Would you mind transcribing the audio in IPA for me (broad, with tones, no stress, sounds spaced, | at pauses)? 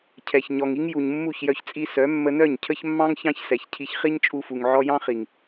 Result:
cʰ ɛ˨ ç ɲ ɔ˨ ŋ i˦ ŋ j u˨ ɲ mː u˦˨ ç j œ˧ ç t͡sʼ i˧ s œ˨˦ mː ə˧ n œ˦˨ ɲ cʰ ə˦ ç mː ɑ̃˦ ŋ ç ɑ̃˦ ç s ɛ˨ ç cʰ i˧ ç χ i˦ ɲ t͡ʃʼ u˧ f u˨ ŋ ʕ ɔ˧ j ɑ̃˦ χ i˨ ŋ